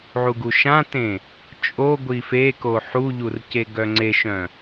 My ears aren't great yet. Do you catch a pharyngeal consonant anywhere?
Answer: yes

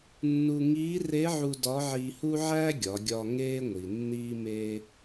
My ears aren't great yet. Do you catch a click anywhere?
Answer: no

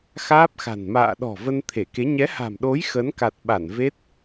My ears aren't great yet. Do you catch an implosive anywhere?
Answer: yes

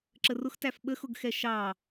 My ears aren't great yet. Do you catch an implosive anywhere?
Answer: yes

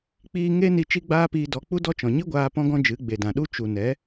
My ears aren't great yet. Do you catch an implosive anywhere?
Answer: yes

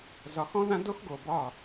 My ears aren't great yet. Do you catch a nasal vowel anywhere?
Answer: yes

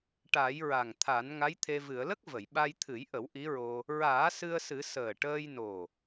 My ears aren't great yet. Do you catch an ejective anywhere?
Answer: no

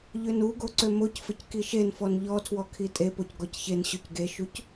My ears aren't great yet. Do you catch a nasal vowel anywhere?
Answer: no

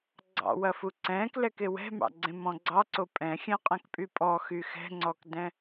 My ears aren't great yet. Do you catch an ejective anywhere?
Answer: yes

